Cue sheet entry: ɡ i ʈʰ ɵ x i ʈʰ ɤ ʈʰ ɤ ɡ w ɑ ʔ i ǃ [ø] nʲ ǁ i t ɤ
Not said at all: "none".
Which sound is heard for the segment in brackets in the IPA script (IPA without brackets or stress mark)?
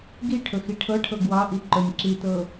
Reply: ɵ